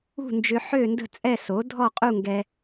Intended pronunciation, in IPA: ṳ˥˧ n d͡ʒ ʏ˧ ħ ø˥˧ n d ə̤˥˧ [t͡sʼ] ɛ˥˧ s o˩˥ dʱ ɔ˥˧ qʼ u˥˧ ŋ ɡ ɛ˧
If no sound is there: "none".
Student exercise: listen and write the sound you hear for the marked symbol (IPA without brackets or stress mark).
t͡sʼ